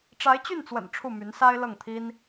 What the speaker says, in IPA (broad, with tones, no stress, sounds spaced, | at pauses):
ʈ͡ʂ a˧˥ ɪ̯ t͡ɕ y˥˩ n t͡s w ə̰˨˩ n ʈ͡ʂʰ u˥˩ m y˧˥ n s a˥ ɪ̯ l ɤ˥˩ ŋ t̪ʰ i˥ n